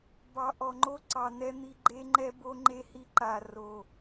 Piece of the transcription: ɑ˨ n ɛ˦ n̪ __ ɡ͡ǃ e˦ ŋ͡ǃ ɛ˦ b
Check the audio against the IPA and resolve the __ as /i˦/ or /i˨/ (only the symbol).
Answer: i˦